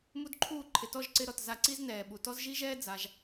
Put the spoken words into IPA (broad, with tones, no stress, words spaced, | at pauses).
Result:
mu˦dǃʰuː˦˨ ǃʰɪ˨tɔ˦˨ʒǀɪ˧ ɾɔ˨t za˧ǀi˦znɛː˨ ɓu˨tɔ˦z ʒi˦ʒɛː˦ d͡za˧ʒ